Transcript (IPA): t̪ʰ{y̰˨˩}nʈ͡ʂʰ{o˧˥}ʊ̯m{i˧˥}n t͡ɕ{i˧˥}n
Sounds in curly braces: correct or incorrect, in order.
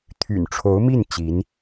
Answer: correct, correct, incorrect: i˥˩, correct

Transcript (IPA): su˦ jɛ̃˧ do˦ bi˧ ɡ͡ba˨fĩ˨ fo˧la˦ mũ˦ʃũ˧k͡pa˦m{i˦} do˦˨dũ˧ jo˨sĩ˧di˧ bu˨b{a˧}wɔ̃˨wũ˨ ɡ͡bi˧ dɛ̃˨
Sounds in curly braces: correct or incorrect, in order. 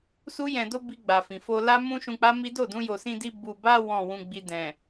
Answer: correct, correct

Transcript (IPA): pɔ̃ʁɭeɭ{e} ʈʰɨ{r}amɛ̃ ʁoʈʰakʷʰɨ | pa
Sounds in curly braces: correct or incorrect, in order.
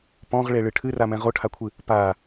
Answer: incorrect: ɨ, correct

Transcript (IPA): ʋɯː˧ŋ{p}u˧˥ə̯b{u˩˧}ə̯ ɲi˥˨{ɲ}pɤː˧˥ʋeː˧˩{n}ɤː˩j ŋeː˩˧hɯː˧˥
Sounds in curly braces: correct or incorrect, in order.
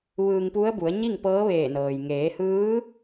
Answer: correct, correct, incorrect: ŋ, correct

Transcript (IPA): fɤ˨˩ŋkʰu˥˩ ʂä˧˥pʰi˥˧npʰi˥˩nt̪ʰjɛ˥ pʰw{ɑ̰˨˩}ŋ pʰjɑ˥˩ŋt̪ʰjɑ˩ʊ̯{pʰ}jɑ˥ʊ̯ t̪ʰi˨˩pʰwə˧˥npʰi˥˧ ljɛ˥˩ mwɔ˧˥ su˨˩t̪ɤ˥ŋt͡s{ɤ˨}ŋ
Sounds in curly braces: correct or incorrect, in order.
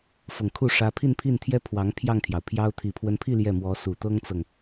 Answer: incorrect: ɑ˧˥, correct, correct

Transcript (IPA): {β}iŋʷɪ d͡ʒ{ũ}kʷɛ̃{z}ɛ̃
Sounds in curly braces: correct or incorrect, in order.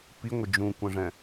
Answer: incorrect: p, correct, incorrect: ʐ

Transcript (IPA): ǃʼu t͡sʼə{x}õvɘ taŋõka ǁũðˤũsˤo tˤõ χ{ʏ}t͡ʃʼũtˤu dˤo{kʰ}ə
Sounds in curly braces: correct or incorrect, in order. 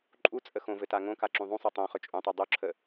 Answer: correct, correct, incorrect: ǁʰ

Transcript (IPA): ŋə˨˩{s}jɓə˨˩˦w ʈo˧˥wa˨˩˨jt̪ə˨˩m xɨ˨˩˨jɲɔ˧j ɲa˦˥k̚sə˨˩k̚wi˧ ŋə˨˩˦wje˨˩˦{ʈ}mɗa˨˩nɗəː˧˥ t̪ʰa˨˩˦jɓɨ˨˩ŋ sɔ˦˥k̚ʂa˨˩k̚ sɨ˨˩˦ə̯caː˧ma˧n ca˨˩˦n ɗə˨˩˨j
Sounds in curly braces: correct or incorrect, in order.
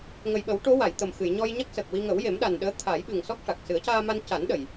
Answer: incorrect: none, incorrect: none

